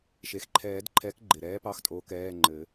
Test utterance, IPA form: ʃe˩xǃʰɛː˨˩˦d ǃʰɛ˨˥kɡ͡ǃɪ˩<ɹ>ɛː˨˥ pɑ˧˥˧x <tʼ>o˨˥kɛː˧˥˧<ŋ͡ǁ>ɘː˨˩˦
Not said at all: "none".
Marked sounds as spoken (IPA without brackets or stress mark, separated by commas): ɾ, tʼ, ŋ͡ǃ